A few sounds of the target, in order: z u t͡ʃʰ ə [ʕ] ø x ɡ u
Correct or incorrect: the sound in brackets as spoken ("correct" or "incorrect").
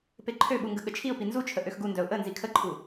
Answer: incorrect